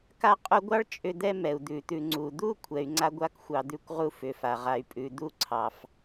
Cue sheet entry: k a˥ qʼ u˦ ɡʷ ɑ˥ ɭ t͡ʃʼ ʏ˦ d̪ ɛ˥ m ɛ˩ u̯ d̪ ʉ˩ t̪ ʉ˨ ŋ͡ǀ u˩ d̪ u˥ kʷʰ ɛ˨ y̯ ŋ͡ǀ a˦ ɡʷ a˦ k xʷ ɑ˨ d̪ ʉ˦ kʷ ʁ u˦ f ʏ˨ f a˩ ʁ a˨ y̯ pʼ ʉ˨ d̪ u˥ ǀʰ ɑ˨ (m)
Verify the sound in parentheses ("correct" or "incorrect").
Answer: incorrect